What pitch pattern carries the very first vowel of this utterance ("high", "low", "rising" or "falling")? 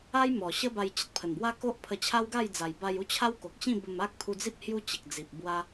high